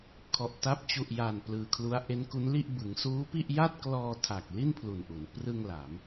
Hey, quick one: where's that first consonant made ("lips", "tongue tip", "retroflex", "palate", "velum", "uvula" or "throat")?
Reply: velum